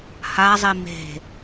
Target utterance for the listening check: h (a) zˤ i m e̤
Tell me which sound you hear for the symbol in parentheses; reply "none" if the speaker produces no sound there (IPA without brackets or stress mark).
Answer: a